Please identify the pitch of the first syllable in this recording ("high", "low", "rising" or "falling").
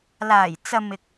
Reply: low